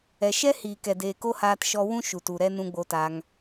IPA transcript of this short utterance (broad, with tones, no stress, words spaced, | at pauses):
ɛ˨ʃɛ˦ hiː˨kɛ˨deː˨ ko˦haː˧tʃɔ˧wũ˦ ʃu˨t u˨ɾɛ˦ nũ˧ɡ͡bo˧taː˧ŋ